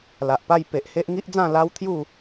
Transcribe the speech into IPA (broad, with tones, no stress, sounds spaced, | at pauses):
l a˨ ʔ p a˥˧ j p e˨ ʔ h e˦ ʔ ŋ i˦ ʔ d͡z ã˥˧ l a˦ w t̪ʰ j u˥˧